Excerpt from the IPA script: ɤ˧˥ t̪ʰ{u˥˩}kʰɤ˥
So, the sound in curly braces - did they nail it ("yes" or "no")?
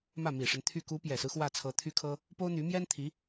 no